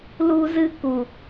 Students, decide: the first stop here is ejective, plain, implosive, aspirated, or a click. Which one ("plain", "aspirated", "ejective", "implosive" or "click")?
plain